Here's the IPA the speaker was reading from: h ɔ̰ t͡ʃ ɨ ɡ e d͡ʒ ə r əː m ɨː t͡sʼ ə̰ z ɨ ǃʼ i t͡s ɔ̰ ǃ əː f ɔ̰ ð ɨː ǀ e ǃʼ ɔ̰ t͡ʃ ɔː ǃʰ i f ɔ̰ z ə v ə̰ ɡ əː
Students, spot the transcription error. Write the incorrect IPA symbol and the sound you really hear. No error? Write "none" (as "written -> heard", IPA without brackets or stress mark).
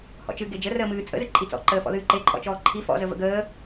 ǀ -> ǃ